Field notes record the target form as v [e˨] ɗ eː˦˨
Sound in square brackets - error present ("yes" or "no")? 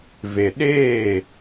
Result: no